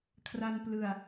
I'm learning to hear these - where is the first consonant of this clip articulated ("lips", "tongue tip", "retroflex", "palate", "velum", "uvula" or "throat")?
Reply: velum